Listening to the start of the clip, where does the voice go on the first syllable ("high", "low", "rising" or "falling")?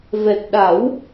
low